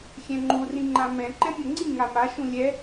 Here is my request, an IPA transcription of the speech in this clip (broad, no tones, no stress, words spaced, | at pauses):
xʲɛ̃ŋ͡ǃu rĩŋ͡ǃãmɛ̃ ǃɛ̃mʲɤŋ͡ǀĩ ŋama ʃũlʲɛ